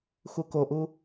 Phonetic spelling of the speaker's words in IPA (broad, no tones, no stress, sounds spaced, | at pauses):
x u k o ʔ u